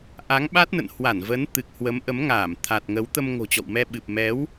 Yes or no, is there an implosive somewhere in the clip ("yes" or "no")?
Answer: yes